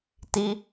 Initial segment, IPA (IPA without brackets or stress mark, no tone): t